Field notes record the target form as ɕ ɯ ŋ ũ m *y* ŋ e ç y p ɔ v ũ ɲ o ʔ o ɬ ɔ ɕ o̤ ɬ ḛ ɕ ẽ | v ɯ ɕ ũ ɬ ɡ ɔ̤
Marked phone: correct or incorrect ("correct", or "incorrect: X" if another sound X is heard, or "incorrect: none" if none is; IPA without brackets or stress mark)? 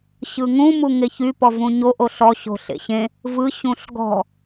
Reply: incorrect: u